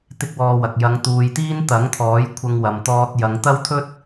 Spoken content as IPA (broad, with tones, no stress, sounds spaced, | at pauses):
t̪ ɪ˥ k̚ w ɔː˧ w ɐ˨ k̚ j ɐ˨˧ ŋ t̪ uː˨ j t̪ iː˥ n t̪ ɐ˨˥ ŋ t̪ʰ ɔː˨˥ j kʷʰ ɐ˧ ŋ w ɐ˨ m t̪ ɔː˧ t̚ j ɐ˨˧ ŋ t̪ ɐ˥ w t̪ʰ ɵ˥ t̚